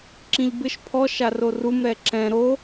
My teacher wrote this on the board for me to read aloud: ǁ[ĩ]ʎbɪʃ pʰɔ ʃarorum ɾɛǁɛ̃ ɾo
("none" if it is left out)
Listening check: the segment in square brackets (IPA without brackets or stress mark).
ĩ